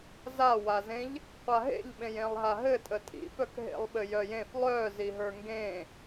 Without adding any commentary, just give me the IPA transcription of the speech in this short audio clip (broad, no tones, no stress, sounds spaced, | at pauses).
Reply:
z a w a z ẽ ʎ | qʷ a ɦ ḛ ʎ ɓ ẽ j ẽ lˠ ɦ a ɦ ɘ tʼ ə tʼ ḭ f œ k ɦ ḛ lˠ ɓ ɘ j œ j ẽ f lˠ œ z i ɦ ə˞ ŋ ɡ ẽ